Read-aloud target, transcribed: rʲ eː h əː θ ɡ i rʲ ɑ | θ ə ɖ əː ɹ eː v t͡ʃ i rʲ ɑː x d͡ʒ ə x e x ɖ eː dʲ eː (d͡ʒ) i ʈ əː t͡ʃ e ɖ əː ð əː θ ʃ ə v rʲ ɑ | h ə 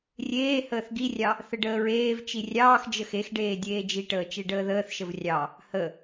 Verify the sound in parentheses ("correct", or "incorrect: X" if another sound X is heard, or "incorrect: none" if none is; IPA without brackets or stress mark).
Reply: correct